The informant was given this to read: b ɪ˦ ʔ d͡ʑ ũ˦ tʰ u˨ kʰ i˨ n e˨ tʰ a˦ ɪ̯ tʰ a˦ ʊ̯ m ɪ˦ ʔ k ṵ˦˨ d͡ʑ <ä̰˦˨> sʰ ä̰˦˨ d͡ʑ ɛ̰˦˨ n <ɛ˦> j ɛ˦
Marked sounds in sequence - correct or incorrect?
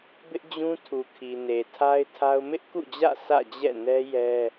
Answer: correct, correct

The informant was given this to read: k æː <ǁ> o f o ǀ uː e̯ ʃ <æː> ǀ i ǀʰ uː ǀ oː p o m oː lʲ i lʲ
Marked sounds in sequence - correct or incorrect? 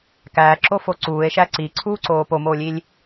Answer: correct, incorrect: æ

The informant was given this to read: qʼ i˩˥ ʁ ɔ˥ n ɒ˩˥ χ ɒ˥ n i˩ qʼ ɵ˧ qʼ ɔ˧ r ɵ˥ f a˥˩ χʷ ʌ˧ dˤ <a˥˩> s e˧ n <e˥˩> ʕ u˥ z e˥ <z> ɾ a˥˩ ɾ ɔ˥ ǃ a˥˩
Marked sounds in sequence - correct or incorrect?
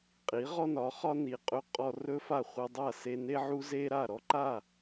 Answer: correct, incorrect: e˥, incorrect: none

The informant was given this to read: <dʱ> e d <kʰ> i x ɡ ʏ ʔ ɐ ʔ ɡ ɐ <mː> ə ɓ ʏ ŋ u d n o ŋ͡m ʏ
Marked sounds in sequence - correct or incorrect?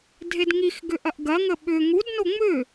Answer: correct, incorrect: ŋ, incorrect: ŋ

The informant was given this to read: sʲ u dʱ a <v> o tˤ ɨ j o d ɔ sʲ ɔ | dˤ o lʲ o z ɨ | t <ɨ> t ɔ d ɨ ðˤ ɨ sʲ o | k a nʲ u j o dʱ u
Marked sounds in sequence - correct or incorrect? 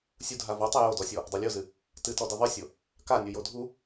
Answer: correct, correct

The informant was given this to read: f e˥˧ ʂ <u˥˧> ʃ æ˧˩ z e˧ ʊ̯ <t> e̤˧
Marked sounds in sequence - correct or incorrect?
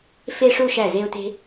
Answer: correct, correct

